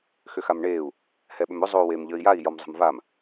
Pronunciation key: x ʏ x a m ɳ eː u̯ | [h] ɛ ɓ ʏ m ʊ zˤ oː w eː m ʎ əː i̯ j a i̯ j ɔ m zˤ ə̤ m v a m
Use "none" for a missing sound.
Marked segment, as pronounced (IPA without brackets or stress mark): h